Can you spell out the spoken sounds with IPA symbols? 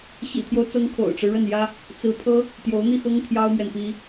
ɕ ḭ˨˩ t̪ʰ j o˦ ʊ̯ t͡s ɤ˧˥ ŋ kʰ o̰˨˩ ʊ̯ ʈ͡ʂ ɻ̩˦ ɻ ə˥˩ n j ä˥ | t͡s ɹ̩˧˥ pʰ ɤ˥ | t̪ j o˧˥ ʊ̯ n̪ i˥˩ x ɤ˥ ŋ t̪ʰ j ɑ˥ ʊ̯ m ɥ ɛ˨ n p i˥

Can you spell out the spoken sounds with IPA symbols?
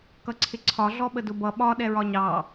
k ʌ ǀʰ ɪ ǀʰ ɒ ɮ ɔ ɓ ə d ʊ b ʌ ɓ ɒ ɗ ɛ ɹ ɒ ɲ ɑ

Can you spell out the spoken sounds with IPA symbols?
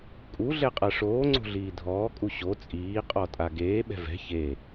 kʼ u ɮ ɛ qʼ a ʂ oː ŋ͡ǀ o̤ ɮ iː dʱ ɔː kʼ u ɕ o t͡sʼ iː qʼ ɔ tʼ a ɡ eː ɓ ɛ̤ v ɛ̤ ç e

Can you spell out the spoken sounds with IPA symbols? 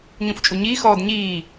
ɲ ũ f t͡ʃʼ u ɲ iː x ɔː d ɲ iː

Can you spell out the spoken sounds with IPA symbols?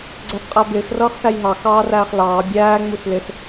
ɡ͡ǀ æ f qʼ æ b ɪː x r ʌː χ s æ j ɦ ɑ x ɑː r æː χ l ɑː bʲ æː ŋ͡m u s l ɪ s

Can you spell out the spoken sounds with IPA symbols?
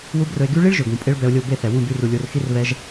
w u˦ b r ɵ˧ e̯ ɡ y˦ ɭ i˦ ɭ ʒ ɵ˨ ɡ ũ˨ pʼ e˦ ɭ b ɛ˧ o̯ lʲ o˦˨ b e˦˨ θ ɛ˨ w ũ˦˨ b y˧ r u˨ lʲ o˧ r x i˦ r β ɛ˦ ʒ

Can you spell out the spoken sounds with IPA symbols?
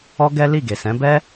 ɔ˦ ɡ ɛ˦ l i˦˨ ɡ e˨ s ɛ̃˨˦ b ɛ˦

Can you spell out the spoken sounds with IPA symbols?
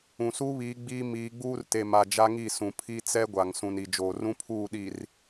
ũ˨ s uː˦ β iː˨˦ ɡ͡b iː˦ m iː˨˦ ɡ͡b uː˦ r t e˨ m a˨ d͡ʒ a˦ ŋ i˦˨ s ũ˨ pʰ i˦ t͡s ɛ˦ ɡʷ a˨ ŋ s ũ˨ n i˨ d͡ʒ oː˨ r ũ˦ pʰ uː˦˨ ɗ i˨ r

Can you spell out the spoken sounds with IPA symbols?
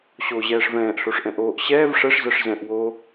ɕ oː ʑ ɛː ʂ v ɛ̃ː ʔ ɬ o ʂ ʔ ɛ̃ ʔ oː ʔ ɕ ɛː v ʂ ɛ ʂ z ɤ ʂ z ɛ̃ ʔ w o

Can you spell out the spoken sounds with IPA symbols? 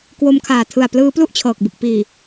k w o˦˥ m kʰ aː˨˩ tʰ ɯ˨˩ a̯ p l ɯː˦˥ p l u˥˩ ʔ t͡ɕʰ ɤː˨˩ k̚ b ɯ˨˩ k̚ p iː˨˩

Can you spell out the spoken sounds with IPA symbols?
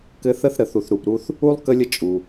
k ɘ˦ θ ə˥ θ ɾ ə˩ θ u˨ θ ɾ u˩ p ɾ u˥ θ | u˥ lˠ k ə˦ lʲ ə˦ t͡ʃʼ u˩

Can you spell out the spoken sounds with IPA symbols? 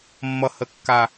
mː ʌ h ə kː a

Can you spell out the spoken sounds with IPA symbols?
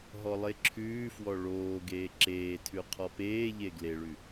ɦ ɔ lˠ e ǁʰ ʉː f w ɔ ɭ oː ɡ eː ǁ eː tʰ ʉ qʰ ɔ p eː ʎ e ɡ l e ɭ ʉ

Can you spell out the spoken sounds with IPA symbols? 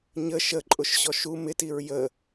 ɲ ə ʃ ə ǃʼ ʊ ʃ ɕ ɔ ʃ u m ɪ t i ɹ j ə

